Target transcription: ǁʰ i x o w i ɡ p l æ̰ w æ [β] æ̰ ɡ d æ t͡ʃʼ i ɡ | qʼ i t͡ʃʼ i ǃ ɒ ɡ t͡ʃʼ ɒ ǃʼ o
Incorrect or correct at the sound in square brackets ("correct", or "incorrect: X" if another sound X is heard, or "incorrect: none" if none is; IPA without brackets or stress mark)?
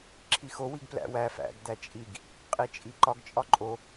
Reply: incorrect: f